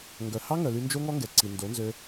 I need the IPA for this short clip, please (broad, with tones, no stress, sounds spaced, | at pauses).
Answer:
ŋ ɡ œ˨ h ɑ˦ ŋ œ˨ l y˧ n d͡ʒ o˦ ŋ ɔ˦ ŋ ɡ ɛ˨ ǀ i˨ n d o˨˦ n z ø˧